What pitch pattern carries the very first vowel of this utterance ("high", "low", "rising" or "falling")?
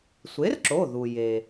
rising